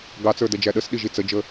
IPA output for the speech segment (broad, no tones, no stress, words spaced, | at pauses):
ɡɑt͡sə˞dɛd͡ʒæ ɗəsɗiʒi t͡səd͡ʒə